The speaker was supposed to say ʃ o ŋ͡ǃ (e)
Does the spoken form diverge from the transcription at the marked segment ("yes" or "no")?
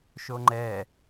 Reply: yes